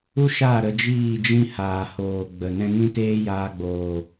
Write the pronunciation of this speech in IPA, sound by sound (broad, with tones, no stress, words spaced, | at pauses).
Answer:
u˦ ʃa˦˨ ɾə˧d͡ʒiː˦˨d͡ʒĩ˦ haː˨hoː˨ ɡ͡bə˨ nɛ̃˧ŋĩ˦teː˦ jaː˧ɡ͡boː˨